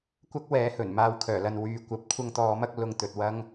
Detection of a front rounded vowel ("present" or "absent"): present